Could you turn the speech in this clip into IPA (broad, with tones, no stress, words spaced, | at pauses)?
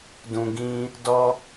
dũ˨ɡĩ˧ | dɔ˧